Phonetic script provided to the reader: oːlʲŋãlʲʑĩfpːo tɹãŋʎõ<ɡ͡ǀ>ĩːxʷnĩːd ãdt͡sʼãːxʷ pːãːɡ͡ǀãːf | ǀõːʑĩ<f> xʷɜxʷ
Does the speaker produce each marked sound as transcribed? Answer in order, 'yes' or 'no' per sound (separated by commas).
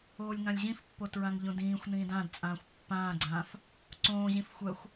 no, yes